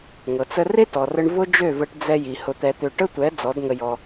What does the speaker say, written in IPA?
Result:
ŋɤ˨t͡sə˧ re˦tɔ˨rə˧ɳ vʊ˦d͡ʒø˦˨və˧ʈ d͡zɛ˧ji˨ hʊ˧t̪ɛ˧t̪ø˧ ʈə˦tʷɛ˨˦ d͡zɔ˨˦dŋə˧jɔ˧

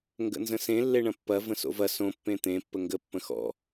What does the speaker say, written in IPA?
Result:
ŋɡə̰nzə̃sẽ lːeɳɐ̃pːɐ və̃so̰vɐ sõ pːẽt̪ẽ pːəŋɡə pːə̃xɔ̰

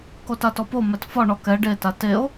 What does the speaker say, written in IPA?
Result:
kotatɔpo mɛtfɒ ɳɔkɛ ɖe tateo̯

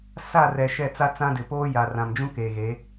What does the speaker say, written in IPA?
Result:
sa˦˨rɛ˨ ʃɛ˦˨t͡sa˦t͡sã˦dɪ˨ poː˦ja˨ rã˨md͡ʒũ˦ke˨ɣe˨˦

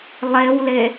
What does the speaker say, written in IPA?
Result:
lˠewle

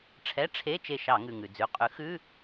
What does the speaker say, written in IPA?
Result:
ʈ͡ʂʰɛ˧˥˧ ʈ͡ʂʰe˧˥˧ t͡ʃe˦˨ʃɑ˧˩˧ ŋʉ˩ŋʉ˩d͡zʉ˩˧˩ qʼʉ˨˥xʉ˧˥˧

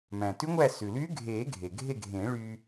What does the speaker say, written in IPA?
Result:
mæ̃˩tʉ˧˥ŋʷæ˦˨ sʉ˩lyː˧˥ɡʱeː˨˩˦ ɡʱe˩ɡʱe˦˨ɡʱẽ˨˩˦ ɭy˥

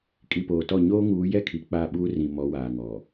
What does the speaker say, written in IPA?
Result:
kʼi˨poː˨tɔ˦˨ ɲoː˦ŋuː˨˦jɛ˦ kʰi˨k͡pa˦˨ɓuː˦rĩ˨ mɔ˨˦waː˨ŋɔ˨

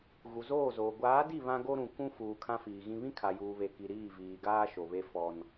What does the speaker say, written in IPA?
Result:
ɣu˨zoː˦˨zoː˨ ɡʷaː˨˦di˦˨ βã˦ɡo˦ɾũ˨ kũ˦fuː˨ kʰã˦fiː˨ɣĩ˦ βĩ˦kʰa˨juː˨βe˨ ki˨ ɾiː˦˨viː˨ɡaː˦ ʃo˨βe˦fɔ˦n

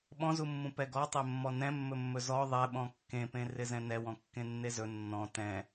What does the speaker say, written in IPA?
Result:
ɓɔ̃zumːũ pɛɡɔtˤe mːɔnɛ̃mːɵmːɵ zɔ ðˤɛɓɔ̃ kːẽpẽ rɪzɛ̃nɛwɔ̃ kːẽnːezɵ nːɔ̃ tɛ̃

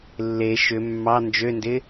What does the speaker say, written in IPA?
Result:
lːe ʃʏ mːɑ nd͡ʒøndɪ

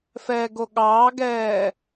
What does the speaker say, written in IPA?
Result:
fɛːɡoɠɑːɡɛː

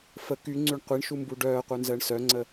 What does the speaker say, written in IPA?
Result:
fə kyŋ͡ǀyɳ qʷiɳʃumbu ɖœːqʷœnzəːɳ sœŋ͡ǀə

